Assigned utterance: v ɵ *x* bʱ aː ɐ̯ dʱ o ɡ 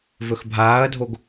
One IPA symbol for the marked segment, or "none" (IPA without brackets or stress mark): x